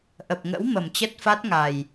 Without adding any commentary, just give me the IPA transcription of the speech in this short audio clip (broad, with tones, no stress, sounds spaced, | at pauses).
ʔ ə˨˩ p̚ ŋ ə̰˧˥ w m ə˨˩ m t͡ɕ ə˦˥ t̚ f a˦˥ t̚ ŋ a˨˩ j